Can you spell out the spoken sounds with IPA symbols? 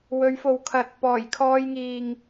w ɵ˨˧ ɥ f o˨ w kʰ ɐ˨˥ t̚ p ɔː˨˩ j kʰ ɔː˧ j ŋ iː˨ ŋ

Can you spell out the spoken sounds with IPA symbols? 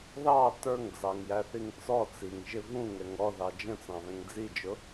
ð ɑ t ə˞ ŋ d͡z ɑ ŋ j æ θ i ŋ t͡s ɔ t͡s i ŋ ʒ ɪ v ũ ŋ ɛ ŋ ɔ ð ɑ d͡ʒ ə̃ t͡s ɑ̃ β ɛ̃ ŋ d͡z i d͡ʒ ʊ

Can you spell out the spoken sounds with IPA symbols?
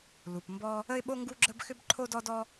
l u˩ p m b ɔ˥ | ə˥ ɪ̯ ɓ o˥ ŋ ɡ u˥ ɡ͡ǁ ə˥ b x ʏ˥ b ǃʰ o˥ d ɔ˥ d ɔ˥

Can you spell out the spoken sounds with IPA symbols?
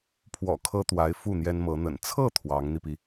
pʰ w ɔ̰˨˩ kʰ ɤ˥ t̪ w a˧˥ ɪ̯ f u˥˩ n̪ j ɛ˥ n m ɤ˧˥ n̪ ə̰˨˩ n t͡sʰ ɤ˥˩ t̪ʰ w ɑ˧˥ ŋ n̪ i˧ p i˩

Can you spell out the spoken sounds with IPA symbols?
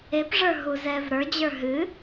e p ʐ ə˞ ɦ u z ɛ v ɾ ə˞ d͡ʑ ə˞ ɦ ɨ

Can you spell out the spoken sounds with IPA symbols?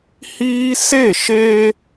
h iː˦ s e˦˨ ʃ eː˦

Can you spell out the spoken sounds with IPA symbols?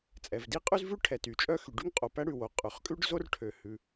t͡sʼ ɛ˩ v d i˥ qʼ ʉ˥ z v ʉ˥ ʈʰ ɛ˩ t y˩ t͡ʃʼ œ˥ x y˩ ɖ y˥ ŋ qʼ o˩ p æ˥ ɽ ʉ˩ w o˩ qʼ ø˩ χ kʼ ʉ˥ ɖ z o˥ r ʈʰ ø˩ h ʉ˩

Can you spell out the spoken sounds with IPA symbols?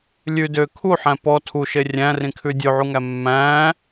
lʲ ʉ d ø kʰ u ħ æ̃ p ɔ tʰ u ʃ e rʲ æ̃ r ĩ kʰ ʉ dʲ ʉ ʕ u ŋ æ mː æ̃ː

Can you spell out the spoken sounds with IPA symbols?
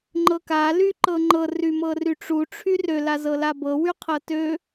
ŋ͡ǃ ɤ k a l y ǃ ɤ ŋ͡ǃ ɤ r y m ɤ r y ʈ͡ʂ u ʈ͡ʂʰ y r ø l a z ɤ l a b ɤ w y qʰ ɤ t ø

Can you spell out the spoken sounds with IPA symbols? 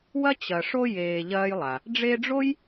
w ɐ˥ t͡ɕ ɐ˨ ʂ o˦ j eː˨ ʎ ɐː˦ j lˠ a˩ | ɖ͡ʐ e˦ ɖ͡ʐ o˥ j

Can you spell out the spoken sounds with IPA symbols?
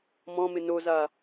m ɔ̃ m ɪ n o z a

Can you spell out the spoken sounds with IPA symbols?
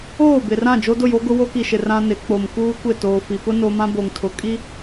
oː˦˨ b ɪ˨ r ã˦˨ d͡ʒ o˦ d ʊ˦˨ j o˦ ɡ ʊ˦ w o˦ k i˨ ʃ ɪ˨ r ã˦ n ɪ˨˦ k͡p o˨ m k uː˦ kʷ ɪ˦˨ t oː˨ f i˨ p ʊ˦ n o˦ m ã˦ b o˨ ŋ tʰ ʊ˨ kʼ i˦

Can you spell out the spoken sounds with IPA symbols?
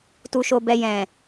t u˧ ʃ o˧ b ɛ˧ j ɛ̃˨

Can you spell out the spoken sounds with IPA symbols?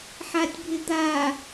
ħ a tʲ bʱ ɪ d̪ a

